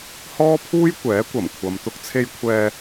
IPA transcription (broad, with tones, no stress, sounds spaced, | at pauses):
h ɔː˥ pʰ uː˥ j kʷ ɛː˨˥ kʷ ɐ˨˩ m kʷʰ ɐ˨ m t̪ ʊ˧ k̚ t͡sʰ e˧ j kʷʰ ɛː˧